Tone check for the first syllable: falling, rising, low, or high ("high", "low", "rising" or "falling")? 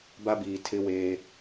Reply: high